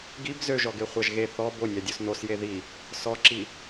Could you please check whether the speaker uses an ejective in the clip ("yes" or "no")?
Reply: no